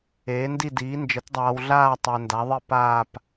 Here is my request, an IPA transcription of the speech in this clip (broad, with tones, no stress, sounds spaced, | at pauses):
eː˨˥ n d i˥˧ d iː˨˥ n d͡ʒ ə˨˥ t dˤ aː˧ w ɮ aː˥˧ tˤ æ˧ n d a˨˥ ðˤ i˥˧ p aː˥˧ p